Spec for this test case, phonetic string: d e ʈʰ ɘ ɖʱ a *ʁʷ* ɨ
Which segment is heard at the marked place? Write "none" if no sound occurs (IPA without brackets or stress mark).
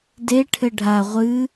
ʁʷ